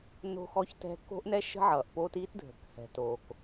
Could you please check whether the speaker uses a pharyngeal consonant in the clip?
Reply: yes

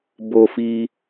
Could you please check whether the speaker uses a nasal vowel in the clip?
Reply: no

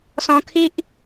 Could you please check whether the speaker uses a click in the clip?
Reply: no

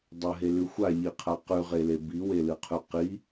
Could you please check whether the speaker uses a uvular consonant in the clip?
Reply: yes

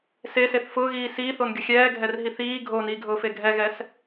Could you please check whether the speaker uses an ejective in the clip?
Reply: no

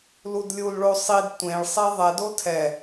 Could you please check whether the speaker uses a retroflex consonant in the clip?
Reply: yes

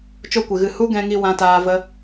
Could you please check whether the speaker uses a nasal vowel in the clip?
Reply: yes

